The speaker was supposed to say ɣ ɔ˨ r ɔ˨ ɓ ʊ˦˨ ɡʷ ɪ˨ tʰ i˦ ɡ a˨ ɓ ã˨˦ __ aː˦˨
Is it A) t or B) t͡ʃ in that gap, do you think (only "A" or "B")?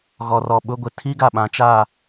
B